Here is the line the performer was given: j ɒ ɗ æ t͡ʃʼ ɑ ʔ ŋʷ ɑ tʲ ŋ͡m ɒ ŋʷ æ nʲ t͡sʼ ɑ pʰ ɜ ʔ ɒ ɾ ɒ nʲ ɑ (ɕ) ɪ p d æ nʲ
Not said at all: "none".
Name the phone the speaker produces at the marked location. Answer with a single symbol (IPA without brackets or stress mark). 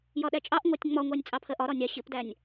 ɕ